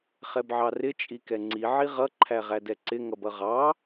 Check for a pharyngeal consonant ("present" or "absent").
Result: present